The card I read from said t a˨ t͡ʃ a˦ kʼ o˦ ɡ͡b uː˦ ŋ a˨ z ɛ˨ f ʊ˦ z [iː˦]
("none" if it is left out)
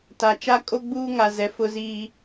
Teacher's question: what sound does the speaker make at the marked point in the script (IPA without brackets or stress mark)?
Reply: iː˦